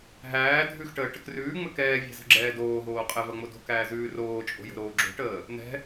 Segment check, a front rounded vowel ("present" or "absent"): absent